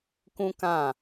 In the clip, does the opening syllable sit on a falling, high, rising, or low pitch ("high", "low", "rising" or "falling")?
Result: high